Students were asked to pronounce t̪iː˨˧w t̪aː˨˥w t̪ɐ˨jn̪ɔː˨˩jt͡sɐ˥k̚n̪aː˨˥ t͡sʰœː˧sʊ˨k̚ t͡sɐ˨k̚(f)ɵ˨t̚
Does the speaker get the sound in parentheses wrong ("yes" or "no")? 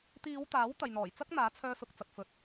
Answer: no